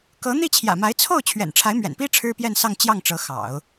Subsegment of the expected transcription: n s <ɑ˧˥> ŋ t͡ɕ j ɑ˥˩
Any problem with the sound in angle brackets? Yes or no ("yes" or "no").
yes